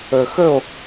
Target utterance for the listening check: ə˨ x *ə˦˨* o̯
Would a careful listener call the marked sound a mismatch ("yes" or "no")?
no